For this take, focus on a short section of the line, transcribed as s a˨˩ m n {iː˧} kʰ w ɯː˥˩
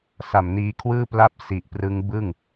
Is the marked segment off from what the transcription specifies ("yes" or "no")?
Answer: no